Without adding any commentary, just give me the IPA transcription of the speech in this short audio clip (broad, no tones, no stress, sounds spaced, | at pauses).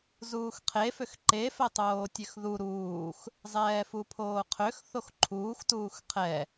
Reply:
z uː x qʰ e f ø x ǃ e f ɛ tˤ oː tʲ ø x ð u ɾ uː x | zˤ ɛː f u pʰ oː qʰ ø x θ o x ǃʰ uː x t uː x qʰ ɛ